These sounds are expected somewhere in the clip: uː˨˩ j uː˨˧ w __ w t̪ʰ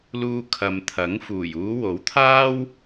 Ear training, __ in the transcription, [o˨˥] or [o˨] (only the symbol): o˨˥